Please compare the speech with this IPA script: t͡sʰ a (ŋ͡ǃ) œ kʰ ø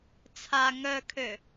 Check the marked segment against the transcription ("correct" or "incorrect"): incorrect